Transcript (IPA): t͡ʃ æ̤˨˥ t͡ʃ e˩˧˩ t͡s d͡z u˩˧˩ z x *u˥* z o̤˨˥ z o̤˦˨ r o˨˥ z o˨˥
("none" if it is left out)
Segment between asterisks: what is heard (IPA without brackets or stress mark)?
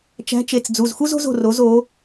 u˥